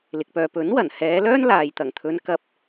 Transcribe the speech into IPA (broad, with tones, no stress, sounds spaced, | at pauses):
l ɪ˨ k̚ p œː˧ p ɵ˨˥ n w ɐ˨˩ n h ɛː˨˧ l œː˥ n l aː˨ j t̪ ɐ˨˩ ŋ t̪ʰ ɵ˨˧ n k ɐ˨ p̚